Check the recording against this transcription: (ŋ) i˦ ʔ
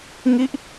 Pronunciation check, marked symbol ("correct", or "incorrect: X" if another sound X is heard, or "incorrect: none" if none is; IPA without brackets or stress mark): correct